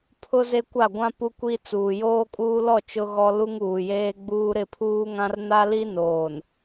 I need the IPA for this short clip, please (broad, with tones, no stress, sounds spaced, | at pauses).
pʰ ʊ˦ z e˦ kʷ a˦˨ ɡʷ ã˦ p u˦ kʷ i˦ t͡s uː˨ j oː˦ kʼ uː˦ l ɔ˦˨ t͡ʃ ʊ˦ ɣ ɔ˦ l u˦ ŋ uː˨ j eː˦ ɡ͡b uː˦ ɾ ɪ˦˨ pʰ uː˦ ŋ ã˦ r n a˦ l i˦ n oː˨ n